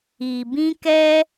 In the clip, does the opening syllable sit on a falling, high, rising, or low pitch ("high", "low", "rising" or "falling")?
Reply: low